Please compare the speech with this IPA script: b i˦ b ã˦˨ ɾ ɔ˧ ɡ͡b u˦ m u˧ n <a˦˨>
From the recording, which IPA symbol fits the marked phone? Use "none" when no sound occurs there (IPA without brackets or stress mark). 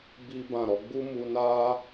a˦